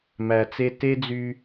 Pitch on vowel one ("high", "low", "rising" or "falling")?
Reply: low